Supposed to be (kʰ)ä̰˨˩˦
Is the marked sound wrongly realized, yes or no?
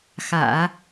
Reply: yes